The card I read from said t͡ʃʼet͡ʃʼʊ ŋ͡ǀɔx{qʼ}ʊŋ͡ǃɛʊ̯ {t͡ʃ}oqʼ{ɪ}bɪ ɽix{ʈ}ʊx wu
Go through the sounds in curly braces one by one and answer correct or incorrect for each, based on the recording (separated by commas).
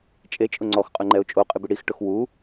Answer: correct, incorrect, correct, correct